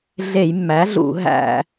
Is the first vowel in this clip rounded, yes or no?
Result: no